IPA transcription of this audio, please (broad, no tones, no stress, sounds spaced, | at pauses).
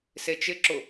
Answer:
s e t͡ʃ ɪ ǁ ʊ